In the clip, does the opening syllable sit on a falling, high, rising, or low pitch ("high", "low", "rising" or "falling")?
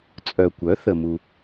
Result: low